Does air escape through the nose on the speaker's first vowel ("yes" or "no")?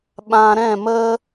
yes